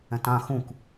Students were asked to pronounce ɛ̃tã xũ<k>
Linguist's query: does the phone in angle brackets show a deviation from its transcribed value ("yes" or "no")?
no